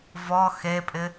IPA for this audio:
vɔ xepʼɪ

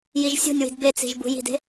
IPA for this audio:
jiʒsʲo̤nʲwi̤d bet͡si̤ʒ bṳji̤de̤

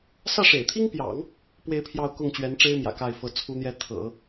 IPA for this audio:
sä˥˩ʂḛ˨˩ɪ̯t̪ʰi˥ŋpjɑ̰˨˩˦ŋ | pwe˥˧ɪ̯pʰjɑ˥˧ʊ̯ kʊ˥˩ŋt͡ɕɥɛ˧˥nʈ͡ʂe˥ɪ̯ mjä̰˨˩ ka˥˩ɪ̯fɤ˧˥t͡sʰu˥n̪jɛ˥ t̪ʰɤ̰˨˩˦

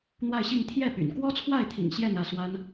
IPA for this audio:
n̪wa˥˧ɪ̯ɕi˥˧ŋ t̪ʰjɛ˥˩ py̰˨˩n kwɔ˥t͡sʰwa˥˩ɪ̯t̪ʰḭ˨˩ŋ ɕjɛ˥˧nä˥˩swa˥n

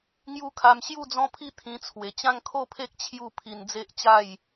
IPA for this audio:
ŋju˦kʰa˧m ɕju˥˧d͡zɔ̃˦pʰi˦ t̪ʰĩ˧t͡sʰwe˨˩ t͡ɕã˦ŋkʰo˥˧pʰe˦k̚ t͡ɕʰju˥˧ pʰi˧nd͡ze˦ʔt͡ɕa˥˧j

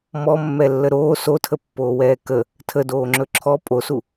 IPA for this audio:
mɔmːɛlːə ɾoː sotʰəpːoːwɛː kə | tʰədoːŋ͡ǁɵ ǁʰɔ pʼosu

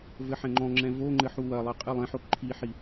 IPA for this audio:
vɘħɛ̃ŋ͡ǃɔ̃ŋ͡ǁɛ̃ voŋ͡ǃɘ ħuwɐlˠɘ qʼɨlˠɛ̃ħo ǃʰiħi

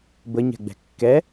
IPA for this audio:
bəɲɛ̤ɡ͡bɛ̤ kːɛ

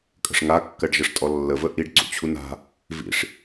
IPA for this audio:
kʼə̤ʂŋa kːɜɖʒəʂtʼɔlːə vəʔiɖ ǀṵt͡ɕʰuna̤ | vḭʂ

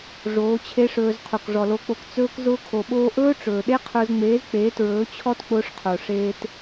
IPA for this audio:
ʐoː˨˦t͡ɕʰe˦ʂɵː˧z qʰo˨kʐɔ˨lo˧k͡po˧k t͡sɵː˧kzʊː˧kʰo˨ɓoː˧ ʔɵː˦ʈ͡ʂɵː˨ ɗe˦qʰʊː˧zŋ͡meː˨˦z k͡peː˨˦ tɹɵː˨˦t͡ɕʰɔ˦t k͡pʊː˧ʂqʰo˨ ʂeː˧t

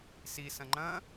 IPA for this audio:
sisɐ̃ ŋ͡ǃɐ̃

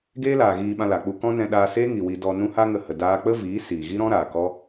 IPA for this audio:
ɡeː˦laː˨ɣiː˧ ɓã˧la˨k͡pu˧ kɔ̃˦ nɛ̃˧ ɗaː˧ seː˦ŋi˨wi˧ dɔ˧ nũ˦ha˦ŋə˧hə˨ daː˧k͡pə˦viː˨˦ siː˨ɣi˦ɾɔ̃˦ɾaː˨ kɔ˦

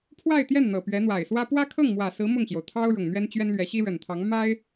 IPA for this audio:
pʰwa˥˧ɪ̯t̪jɛ˥˩n n̪ɤ˨˩pɥɛ˧˥n̪wa˨˩ɪ̯ swä˥ pwä˥kʰɤ˥˩ŋmwä˨˩sɹ̩˧˥ mʊ˥˩ŋɕjo˩ʊ̯ t̪ʰɑ˥ʊ̯ ɻʊ˨˩ŋn̪ɥɛ˥nt͡ɕɥɛ˥nlɥɛ˧˥ ɕi˥ɻə˨˩nt̪ʰɑ˧˥ŋ ma˥ɪ̯

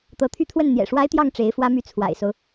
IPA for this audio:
t̪ɤ˧˥t̪ʰy˥˧t̪ʰwə˥˩n n̪jɛ̰˨˩ʂwa˥ɪ̯t̪jɑ˥˩ŋ ʈ͡ʂe˧˥ɪ̯fwä˥my˥˩ t͡sʰwa̰˨˩ɪ̯so˦ʊ̯

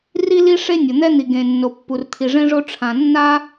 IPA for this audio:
ri˥li˥ ʂe˥ nʲo˩n̪ɛ˥n̪i˩ ɡẽ˩ nːo˩ pːu˩rt̪ʰi˩ʐẽ˥ʐo˥ ʈ͡ʂʰã˩nːa˥

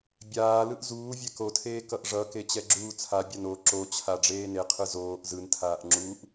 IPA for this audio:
bʲaːlɯʔ zuːvʲɛk otʰeː kʌʔʐʌke t͡ɕɛɡ͡ǁuːt͡sʰabʲan o ǁot͡ɕʰa ɖ͡ʐeːneqʰɯ zoːʔ zɯntʰaːʔ ŋ͡ǁuʔ

